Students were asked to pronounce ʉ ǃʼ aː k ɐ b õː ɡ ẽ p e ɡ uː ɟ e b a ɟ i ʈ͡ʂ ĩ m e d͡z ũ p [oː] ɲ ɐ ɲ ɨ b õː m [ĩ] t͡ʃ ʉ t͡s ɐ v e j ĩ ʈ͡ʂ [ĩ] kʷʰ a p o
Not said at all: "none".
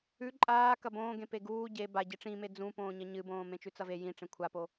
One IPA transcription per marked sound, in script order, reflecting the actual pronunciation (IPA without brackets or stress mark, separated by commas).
õː, ẽ, ẽ